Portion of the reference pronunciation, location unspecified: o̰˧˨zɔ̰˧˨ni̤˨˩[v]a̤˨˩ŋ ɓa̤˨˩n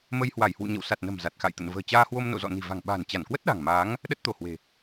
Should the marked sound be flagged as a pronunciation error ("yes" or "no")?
no